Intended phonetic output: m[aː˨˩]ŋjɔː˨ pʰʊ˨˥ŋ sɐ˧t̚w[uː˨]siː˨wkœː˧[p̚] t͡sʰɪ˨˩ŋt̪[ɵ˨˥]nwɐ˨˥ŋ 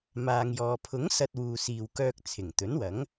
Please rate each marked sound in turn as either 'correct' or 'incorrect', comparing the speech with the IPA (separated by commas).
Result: incorrect, correct, incorrect, correct